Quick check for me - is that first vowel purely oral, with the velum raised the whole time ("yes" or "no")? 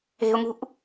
yes